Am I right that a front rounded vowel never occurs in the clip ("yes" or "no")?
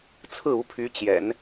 no